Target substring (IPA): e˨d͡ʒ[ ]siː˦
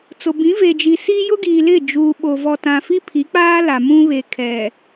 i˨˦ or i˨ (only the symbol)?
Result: i˨